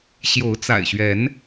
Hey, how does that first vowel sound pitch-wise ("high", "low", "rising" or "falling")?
rising